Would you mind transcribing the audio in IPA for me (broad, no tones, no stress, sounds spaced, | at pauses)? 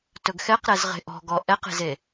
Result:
t ɵ ɡ x ɛ q ɾ ɛ z ʁ e̤ ʔ ɔ̤ ɡ ɔ ʔ ɛ q e̤ z e